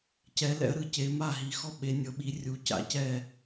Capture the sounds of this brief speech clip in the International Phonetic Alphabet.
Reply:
c ɛ˨˦ l ɛ̰˨˦ ə̯ ɾ ɯ˨˦ c e˨˦ m a˥˩ ɦ i˨˦ x ɔ˥˩ ɓ e˨˦ nʲ ɤ˨˦ ɓ i˨˦ rʲ u˨˦ c a̰˨˦ c ɛ˥˩

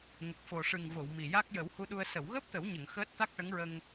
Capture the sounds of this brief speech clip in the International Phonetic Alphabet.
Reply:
ŋ ə˨˩ k̚ f o˨˩ ʂ ɨ˨˩ ŋ v o˨˩˨ w m i˨˩ j a˦˥ k̚ j ə˨˩˦ w h u˧ ɗ u˧ ə̯ s ə˨˩˨ w ɣ əː˦˥ p̚ t̪ ə˨˩˦ w ɲ ə˨˩˨ ŋ x əː˦˥ t̚ t̪ a˦˥ k̚ ʈ ə˧˥ ŋ ɹ ə˧ ŋ

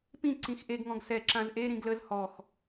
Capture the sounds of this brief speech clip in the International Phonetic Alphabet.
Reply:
p ĩ ǀ ĩ x ʔ e ɡ ŋ ɔ̃ ɡ s ɛ ǁ ã z ʔ e ɾ ĩ ɡ l ə z h ɔ x

